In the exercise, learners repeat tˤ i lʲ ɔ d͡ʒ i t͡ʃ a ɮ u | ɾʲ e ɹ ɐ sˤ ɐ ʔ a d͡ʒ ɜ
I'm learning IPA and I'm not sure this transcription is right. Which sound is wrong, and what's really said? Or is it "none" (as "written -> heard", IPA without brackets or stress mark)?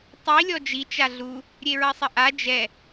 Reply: ɜ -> ɛ